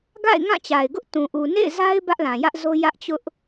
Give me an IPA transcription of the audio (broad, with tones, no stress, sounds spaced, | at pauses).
ɡ a̰˦˨ ɪ̯ ŋ ã˦˨ t͡ɕ a˨ ɪ̯ ɡ ʊ˦ ʔ t ũ˨ ʔ u˨ n ḛ˦˨ ɪ̯ z a˦ ɪ̯ b ä˦ ʔ l ã˨ j ä˦ ʔ z o˦ j ä˦ ʔ t͡ɕ ʊ˦ ʔ